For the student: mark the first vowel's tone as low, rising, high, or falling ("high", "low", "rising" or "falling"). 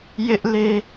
high